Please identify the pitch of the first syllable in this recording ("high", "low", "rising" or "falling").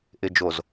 low